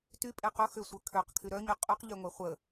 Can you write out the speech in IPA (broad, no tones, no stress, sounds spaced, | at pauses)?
t y pʼ e q ʊ x ʏ sʷ œ kʰ ø q kʰ y ɾ œ ɲ y qʼ u q ʎ ø ŋʷ e χʷ ə